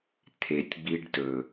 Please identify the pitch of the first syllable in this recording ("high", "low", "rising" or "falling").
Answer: low